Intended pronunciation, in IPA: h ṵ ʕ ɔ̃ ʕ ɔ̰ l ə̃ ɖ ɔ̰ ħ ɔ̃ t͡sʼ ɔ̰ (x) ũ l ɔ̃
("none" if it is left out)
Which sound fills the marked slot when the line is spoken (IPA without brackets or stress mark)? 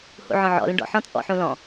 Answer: ħ